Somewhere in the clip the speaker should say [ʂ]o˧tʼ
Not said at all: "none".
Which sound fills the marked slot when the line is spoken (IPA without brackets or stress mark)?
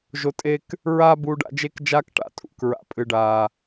ʒ